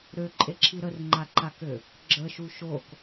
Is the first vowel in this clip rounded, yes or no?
yes